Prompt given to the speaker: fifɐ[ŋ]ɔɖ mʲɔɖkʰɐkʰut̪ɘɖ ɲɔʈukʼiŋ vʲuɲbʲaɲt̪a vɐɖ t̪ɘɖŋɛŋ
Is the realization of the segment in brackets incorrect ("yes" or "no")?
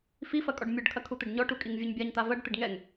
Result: yes